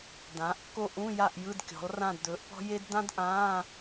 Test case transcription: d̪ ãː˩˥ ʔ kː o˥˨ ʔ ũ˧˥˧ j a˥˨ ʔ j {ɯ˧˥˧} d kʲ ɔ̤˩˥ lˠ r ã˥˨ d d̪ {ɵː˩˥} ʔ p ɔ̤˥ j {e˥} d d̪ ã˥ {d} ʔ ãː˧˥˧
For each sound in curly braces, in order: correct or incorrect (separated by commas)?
correct, correct, correct, correct